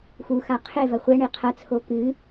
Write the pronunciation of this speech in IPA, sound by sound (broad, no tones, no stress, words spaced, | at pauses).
xuxa qʰevɐ χʷɛɳe qʰɐt͡sʰo kɨ